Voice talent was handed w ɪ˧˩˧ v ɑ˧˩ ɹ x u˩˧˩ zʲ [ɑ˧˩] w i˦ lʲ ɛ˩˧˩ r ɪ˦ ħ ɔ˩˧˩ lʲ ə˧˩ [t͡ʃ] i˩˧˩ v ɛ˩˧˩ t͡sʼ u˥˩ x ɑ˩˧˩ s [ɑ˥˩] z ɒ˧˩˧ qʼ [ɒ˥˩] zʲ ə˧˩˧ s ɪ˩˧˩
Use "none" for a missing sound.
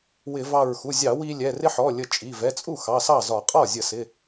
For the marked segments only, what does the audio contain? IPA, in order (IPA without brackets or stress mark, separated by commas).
ɑ˧˩˧, t͡ʃʼ, ɑ˥˩, ɒ˥˩